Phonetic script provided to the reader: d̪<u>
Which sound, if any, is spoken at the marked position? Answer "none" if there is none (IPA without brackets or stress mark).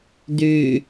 y